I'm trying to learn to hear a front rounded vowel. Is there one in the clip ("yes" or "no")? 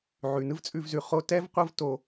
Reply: no